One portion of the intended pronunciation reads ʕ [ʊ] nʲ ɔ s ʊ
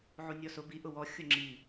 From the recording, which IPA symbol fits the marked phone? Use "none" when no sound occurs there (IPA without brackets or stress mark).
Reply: u